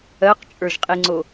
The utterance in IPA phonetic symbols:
ɜqt͡ʃʼə˞ʒqʼiŋ͡ǀo

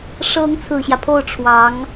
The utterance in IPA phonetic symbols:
ʂɤ˧˥ŋ t͡sʰɹ̩˨˩ɕjä˦pʰo˥˩ʊ̯ ʈ͡ʂʰwɑ˧˥ŋ

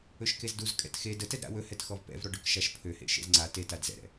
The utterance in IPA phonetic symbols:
ɵʃkezduzkʼɛ̰t xe dətɛd ɾa̰wɵhɛt xɔvpɛ̰vɾɔ ɖɵkʃaʃpʰøhḛ ʃḛzŋ͡ǀa tetad zɛ̰ɾɛ̰

